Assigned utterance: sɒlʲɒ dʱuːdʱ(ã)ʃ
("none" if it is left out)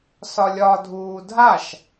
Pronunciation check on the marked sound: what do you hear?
a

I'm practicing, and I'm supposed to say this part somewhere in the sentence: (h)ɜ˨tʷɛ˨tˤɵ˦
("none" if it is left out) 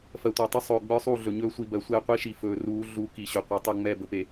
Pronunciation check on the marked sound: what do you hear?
f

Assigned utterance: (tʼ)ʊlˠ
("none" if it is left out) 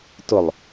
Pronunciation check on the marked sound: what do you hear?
t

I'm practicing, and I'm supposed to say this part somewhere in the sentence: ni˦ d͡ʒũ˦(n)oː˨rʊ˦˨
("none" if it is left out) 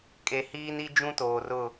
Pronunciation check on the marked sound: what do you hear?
t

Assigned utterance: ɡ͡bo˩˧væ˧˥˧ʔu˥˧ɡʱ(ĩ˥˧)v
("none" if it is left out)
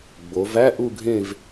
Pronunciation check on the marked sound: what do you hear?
ẽ˥˧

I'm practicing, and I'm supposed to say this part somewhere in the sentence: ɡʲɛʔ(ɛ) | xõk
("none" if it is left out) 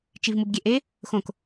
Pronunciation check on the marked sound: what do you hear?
e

